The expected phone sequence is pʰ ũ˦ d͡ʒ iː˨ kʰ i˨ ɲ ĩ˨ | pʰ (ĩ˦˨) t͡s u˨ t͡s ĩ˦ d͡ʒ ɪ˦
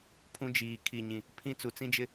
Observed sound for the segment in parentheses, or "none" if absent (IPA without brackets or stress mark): ĩ˦˨